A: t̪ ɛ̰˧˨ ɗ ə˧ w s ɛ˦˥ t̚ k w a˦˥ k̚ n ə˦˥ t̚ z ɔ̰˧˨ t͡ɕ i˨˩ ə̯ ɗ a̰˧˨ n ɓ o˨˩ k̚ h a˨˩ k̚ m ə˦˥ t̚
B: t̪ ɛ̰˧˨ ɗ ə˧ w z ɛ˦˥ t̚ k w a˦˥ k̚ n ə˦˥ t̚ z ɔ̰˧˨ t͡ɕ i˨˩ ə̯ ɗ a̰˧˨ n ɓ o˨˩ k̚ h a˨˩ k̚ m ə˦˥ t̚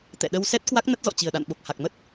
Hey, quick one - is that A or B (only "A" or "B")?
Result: A